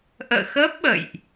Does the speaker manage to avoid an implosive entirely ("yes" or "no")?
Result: no